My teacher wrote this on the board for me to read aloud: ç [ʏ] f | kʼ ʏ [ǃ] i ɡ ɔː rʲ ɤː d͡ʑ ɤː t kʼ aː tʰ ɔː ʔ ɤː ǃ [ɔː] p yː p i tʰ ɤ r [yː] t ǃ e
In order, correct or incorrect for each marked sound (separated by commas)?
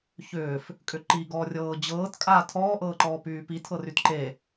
incorrect, correct, correct, incorrect